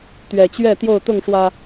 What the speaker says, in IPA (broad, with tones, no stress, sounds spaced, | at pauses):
t̪ ɥ ɛ˨˩ t͡ɕ ɥ ɛ˥˨ t̪ j o˥˨ ʊ̯ t̪ ʊ˥˨ ŋ ʂ w ä˨˩